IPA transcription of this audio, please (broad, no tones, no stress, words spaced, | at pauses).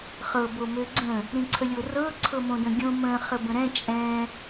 χɤbomø ɡ͡ǀə̃ | ɾĩǀʰəlʲorɤ ǀʰɤmõdə̃ɡʲõ mə̃ χəbə̃ɾɛ̃ t͡ʃʼɛ̃